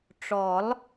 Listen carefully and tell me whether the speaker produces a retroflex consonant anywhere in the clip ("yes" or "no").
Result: yes